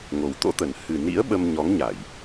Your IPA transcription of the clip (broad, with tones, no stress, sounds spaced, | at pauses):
ŋ o˨˩ w t̪ o̰˧˥ t̪ ə˨˩ n h ɨ˨˩ n ḭ˧˥ ə̯ ɓ ə˧ m ɲ ɔ˨˦ ŋ ɲ a˧˩˨ j